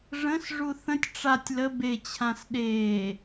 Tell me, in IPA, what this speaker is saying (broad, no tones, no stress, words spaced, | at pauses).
ʐə̃s ʐuθə̃tʲ ʈ͡ʂatʲ lə be t͡ɕʰãsɗeː